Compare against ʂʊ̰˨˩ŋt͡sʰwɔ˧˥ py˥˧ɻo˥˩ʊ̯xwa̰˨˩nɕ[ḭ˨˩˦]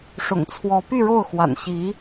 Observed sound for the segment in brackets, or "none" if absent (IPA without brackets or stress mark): i˧˥